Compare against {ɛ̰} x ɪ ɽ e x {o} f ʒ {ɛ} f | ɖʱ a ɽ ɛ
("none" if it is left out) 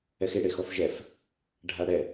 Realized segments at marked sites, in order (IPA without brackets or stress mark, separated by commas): ɛ, ɔ, ɛ